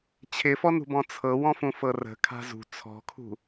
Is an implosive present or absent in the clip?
absent